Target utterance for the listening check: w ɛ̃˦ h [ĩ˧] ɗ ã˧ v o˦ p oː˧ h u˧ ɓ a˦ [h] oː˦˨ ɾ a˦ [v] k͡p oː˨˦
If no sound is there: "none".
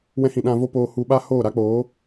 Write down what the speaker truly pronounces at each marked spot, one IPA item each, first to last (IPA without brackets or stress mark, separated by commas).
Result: ĩ˧, h, none